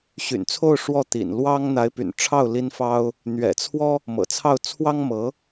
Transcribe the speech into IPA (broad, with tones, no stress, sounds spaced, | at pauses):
ɕ y̰˨˩ n t͡sʰ o˥˧ ʊ̯ ʂ w ɔ˥˩ t̪ ḭ˨˩ n l w ɑ˥ ŋ n̪ a˧˥ ɪ̯ p y̰˨˩ n ʈ͡ʂʰ ɑ˥˩ ʊ̯ l i˥ n f ɑ˥ ʊ̯ | n̪ ɥ ɛ̰˨˩ t͡sʰ w ɔ˥ | m ɤ̰˨˩ t͡sʰ ɑ˥˩ ʊ̯ t͡sʰ w ɑ˥ ŋ m ɤ˧˥